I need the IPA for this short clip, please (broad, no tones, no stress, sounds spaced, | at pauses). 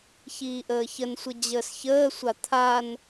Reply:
ç iː ʔ əː ç ə n sʷ ə d͡ʑ əː s ç əː sʷ a t̪ʰ a n